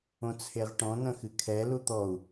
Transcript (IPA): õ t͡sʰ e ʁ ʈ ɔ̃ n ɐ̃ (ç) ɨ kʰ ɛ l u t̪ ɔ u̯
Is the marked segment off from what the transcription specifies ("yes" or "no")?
yes